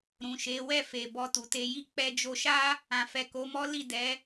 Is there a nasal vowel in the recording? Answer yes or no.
yes